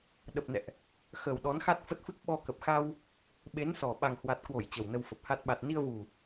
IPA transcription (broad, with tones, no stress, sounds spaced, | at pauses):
ɗ ə˨˩ p̚ n ɛ̰˧˨ ʔ | x ə˨˩ w ɗ ɔ˨˦ n x a˦˥ t̚ f ə˦˥ t̚ f ɨ˦˥ k̚ ɓ ɔ˧ k ə˨˩ p̚ x a˧ w | ɓ e˨˦ n s ɔ˨˩ ɓ a˨˩ ŋ h w a˨˩ t̚ k w o˧˩ j t͡ɕ ə˨˩ w n ə˧ w f ə˨˩ p̚ h a˦˥ t̚ ɓ a˨˩ t̚ n i˧ ə̯ v u˨˩